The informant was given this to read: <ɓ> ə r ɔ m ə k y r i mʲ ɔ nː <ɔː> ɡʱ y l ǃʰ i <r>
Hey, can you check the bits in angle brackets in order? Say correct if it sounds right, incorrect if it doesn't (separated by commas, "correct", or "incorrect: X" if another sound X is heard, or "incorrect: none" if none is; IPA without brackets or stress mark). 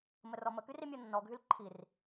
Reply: incorrect: m, incorrect: ɔ, correct